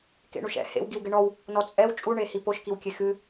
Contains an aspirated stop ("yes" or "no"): no